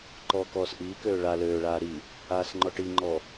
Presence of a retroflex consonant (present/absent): present